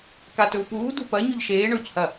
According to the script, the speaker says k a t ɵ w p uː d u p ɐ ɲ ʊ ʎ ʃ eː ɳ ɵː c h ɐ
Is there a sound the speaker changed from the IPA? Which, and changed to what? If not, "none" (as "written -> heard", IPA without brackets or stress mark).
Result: ʊ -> ɵ